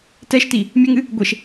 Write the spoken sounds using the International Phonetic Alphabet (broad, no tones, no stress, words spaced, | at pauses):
tɛʃti | mʲɘŋɨ | ɡʷeʃ